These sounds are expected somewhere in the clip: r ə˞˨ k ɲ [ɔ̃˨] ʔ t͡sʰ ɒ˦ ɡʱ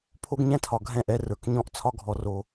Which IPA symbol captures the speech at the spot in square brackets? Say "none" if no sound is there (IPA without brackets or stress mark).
ɔ̃˦